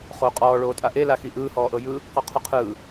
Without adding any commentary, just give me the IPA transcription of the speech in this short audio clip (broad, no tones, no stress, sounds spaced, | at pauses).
χ o qʼ ɔː ɭ oː tʼ a ʔ e l a x i ʔ ɯː h ɔː ʔ ɤ j ɯ | q ɔ qʰ u qʰ ɯː